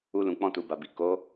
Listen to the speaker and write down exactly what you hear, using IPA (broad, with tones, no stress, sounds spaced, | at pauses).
u˧ l ũ˨ k͡p ɔ̃˧ t u˨ b a˨ b i˨ k o˨˦